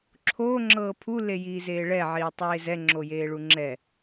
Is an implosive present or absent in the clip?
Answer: absent